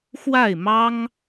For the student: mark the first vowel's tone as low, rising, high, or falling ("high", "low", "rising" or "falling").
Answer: falling